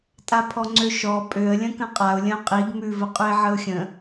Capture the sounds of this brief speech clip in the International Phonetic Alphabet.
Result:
tʼapʰɔŋ͡ǀøʃɔ pʼøə̯ lʲə̃kə̃qʼaʊ̯ lʲə̃ʊ̯qʼiɡ mʉ vəqʼʉɪ̯ʕəʊ̯xʲə̃

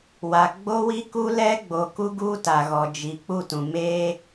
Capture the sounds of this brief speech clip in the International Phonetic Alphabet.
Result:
wa˨ɡ͡bo˦ wi˦ku˦lɛ˦ ɡ͡bo˨ku˦ ɡu˦ ta˨ɣɔ˨ d͡ʒi˨ k͡pu˦˨tũ˨ meː˦

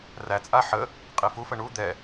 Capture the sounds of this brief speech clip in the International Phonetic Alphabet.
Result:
ræt͡sʼa ħə | qʼifufə ɳu d̪ɛ

